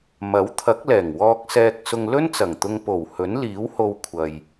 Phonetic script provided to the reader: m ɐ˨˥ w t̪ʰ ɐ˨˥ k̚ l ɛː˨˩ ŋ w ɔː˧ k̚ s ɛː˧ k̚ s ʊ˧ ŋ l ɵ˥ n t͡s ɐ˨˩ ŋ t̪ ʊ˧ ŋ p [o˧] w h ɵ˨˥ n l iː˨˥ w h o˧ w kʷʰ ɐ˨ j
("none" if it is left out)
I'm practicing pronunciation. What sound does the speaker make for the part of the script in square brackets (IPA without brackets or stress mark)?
o˨˩